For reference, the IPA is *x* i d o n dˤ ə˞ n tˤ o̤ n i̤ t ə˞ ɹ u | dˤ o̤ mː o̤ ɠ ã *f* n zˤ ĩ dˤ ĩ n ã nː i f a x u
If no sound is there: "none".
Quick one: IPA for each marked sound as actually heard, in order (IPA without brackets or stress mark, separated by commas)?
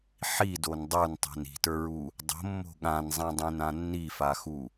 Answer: ħ, none